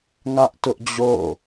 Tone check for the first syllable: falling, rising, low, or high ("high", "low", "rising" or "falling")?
high